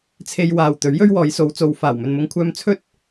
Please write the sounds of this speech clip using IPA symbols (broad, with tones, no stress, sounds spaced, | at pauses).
t͡sʰ e˧ j w aː˨ w t̪ ɵ˨˥ ɥ j ɵ˥ ɥ w ɔː˨˧ j s o˨˧ w t͡s o˨ w f aː˨˩ w m ɵ˨ n m ʊ˧ ŋ kʷʰ œː˧ m t͡sʰ ɵ˥ t̚